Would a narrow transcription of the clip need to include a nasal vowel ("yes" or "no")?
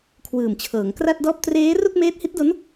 no